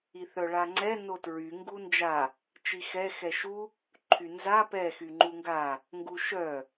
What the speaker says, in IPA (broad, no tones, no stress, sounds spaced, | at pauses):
i θ œ ɭ a ŋ͡ǀ ɛ n o t ɹ y ŋ ɡ u n d͡ʒ a | t͡ʃ i x ɛ x ɛ ʃ u | ǃʰ y n z a p ɛ x y ŋ͡ǃ u ŋ ɡ a | ŋ ɡ u ʃ œ